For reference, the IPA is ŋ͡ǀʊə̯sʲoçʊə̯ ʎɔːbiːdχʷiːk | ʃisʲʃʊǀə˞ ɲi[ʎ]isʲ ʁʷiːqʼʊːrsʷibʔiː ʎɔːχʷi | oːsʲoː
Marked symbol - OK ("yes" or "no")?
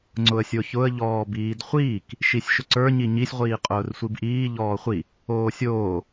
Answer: no